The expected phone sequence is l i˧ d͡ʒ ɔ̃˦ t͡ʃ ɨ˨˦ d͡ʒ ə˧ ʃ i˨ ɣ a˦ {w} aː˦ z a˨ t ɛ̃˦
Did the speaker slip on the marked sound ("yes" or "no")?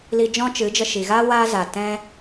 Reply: no